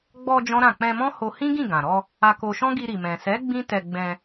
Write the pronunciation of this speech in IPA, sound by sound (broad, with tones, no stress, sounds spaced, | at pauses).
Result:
ɡ͡b ɔ˧ d͡ʒ ɔ̃˦ ɾ ã˦˨ k͡p ɛ̃˧ m ɔ̃˦ h o˧ h ĩ˦ ɡ ĩ˦˨ ɡ ã˨ ɾ ɔ˧ | a˧ k o˧ ʃ ɔ̃˦ ɡ i˧ ɾ i˨ m ɛ̃˨ s ɛ˨˦ ɡ͡b ĩ˦ t ɛ˧ ɡ͡b ɛ̃˧